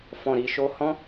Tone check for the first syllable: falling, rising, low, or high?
low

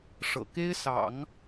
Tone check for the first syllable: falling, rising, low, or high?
low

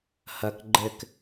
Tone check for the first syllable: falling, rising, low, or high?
low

